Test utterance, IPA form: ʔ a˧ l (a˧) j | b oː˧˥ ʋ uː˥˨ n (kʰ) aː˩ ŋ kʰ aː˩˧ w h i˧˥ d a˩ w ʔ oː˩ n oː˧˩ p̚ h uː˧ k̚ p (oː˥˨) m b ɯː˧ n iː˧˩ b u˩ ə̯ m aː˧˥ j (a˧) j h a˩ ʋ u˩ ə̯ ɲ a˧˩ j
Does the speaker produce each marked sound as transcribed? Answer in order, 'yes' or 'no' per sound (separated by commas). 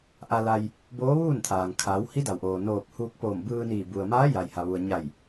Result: yes, no, no, no